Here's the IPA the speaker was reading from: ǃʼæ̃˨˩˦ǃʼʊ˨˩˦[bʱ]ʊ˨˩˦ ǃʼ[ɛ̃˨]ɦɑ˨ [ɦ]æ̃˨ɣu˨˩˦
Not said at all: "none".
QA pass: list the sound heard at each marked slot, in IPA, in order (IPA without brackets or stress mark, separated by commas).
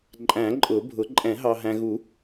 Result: bʱ, ɛ̃˨˩˦, ɦ